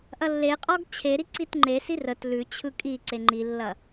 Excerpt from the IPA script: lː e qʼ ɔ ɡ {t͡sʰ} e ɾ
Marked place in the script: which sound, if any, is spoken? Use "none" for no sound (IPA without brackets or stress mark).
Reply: t͡ɕʰ